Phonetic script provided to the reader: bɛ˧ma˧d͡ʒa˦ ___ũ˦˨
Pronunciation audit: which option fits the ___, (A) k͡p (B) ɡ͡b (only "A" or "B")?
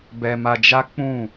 A